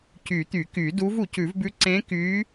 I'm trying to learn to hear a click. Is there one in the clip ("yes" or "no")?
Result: yes